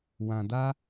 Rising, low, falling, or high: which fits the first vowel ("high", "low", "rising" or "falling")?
low